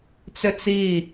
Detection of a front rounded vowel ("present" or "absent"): present